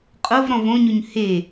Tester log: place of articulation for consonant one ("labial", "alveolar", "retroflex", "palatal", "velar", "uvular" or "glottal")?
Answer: uvular